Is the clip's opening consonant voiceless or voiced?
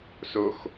voiceless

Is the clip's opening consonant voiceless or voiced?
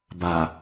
voiced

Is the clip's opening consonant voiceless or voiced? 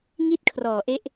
voiced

